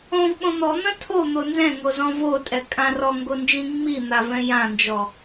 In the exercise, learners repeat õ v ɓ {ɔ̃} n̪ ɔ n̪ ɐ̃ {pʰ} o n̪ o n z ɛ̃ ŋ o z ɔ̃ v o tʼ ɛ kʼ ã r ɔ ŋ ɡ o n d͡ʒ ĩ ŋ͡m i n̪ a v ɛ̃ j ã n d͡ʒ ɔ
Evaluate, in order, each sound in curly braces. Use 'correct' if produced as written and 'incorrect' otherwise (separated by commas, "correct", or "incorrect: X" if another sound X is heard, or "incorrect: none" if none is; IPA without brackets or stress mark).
incorrect: õ, incorrect: tʰ